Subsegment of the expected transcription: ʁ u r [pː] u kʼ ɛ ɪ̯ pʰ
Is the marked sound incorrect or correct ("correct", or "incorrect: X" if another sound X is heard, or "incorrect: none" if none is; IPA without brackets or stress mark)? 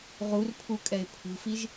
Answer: incorrect: pʰ